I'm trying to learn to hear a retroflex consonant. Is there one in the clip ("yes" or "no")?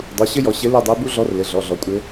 no